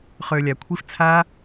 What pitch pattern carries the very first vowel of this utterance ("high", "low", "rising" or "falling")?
low